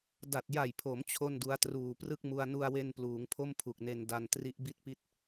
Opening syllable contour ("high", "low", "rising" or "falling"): low